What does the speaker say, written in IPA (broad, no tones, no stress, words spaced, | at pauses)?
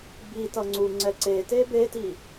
bi tʌŋ͡ǀuŋ͡ǀɛ ǀete beti